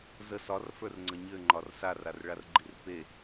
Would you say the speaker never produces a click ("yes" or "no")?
no